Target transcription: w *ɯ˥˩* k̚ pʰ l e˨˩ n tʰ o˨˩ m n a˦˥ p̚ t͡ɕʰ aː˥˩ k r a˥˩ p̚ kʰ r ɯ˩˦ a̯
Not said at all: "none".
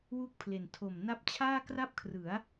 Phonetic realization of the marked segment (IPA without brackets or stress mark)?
u˥˩